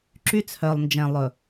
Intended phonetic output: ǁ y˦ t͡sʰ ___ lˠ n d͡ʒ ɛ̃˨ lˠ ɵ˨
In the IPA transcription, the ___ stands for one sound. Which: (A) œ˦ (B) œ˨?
B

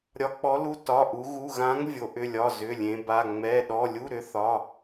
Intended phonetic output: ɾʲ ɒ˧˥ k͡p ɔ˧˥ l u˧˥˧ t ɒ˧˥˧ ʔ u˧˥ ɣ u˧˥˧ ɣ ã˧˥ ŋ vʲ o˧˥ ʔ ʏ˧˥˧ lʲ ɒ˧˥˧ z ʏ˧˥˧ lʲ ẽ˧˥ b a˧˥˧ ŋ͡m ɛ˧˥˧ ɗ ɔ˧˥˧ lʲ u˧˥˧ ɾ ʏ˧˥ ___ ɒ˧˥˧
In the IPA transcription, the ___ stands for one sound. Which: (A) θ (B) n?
A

